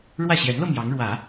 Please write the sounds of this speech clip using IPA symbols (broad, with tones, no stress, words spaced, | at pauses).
ɻwä˥˩ɕjɛ˧˥nlɤ˧ mjɑ˧˥ŋɻwä˨˩˦